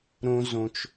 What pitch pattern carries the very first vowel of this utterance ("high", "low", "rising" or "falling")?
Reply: low